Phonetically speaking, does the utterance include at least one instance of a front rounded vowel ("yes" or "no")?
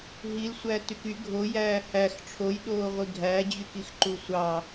yes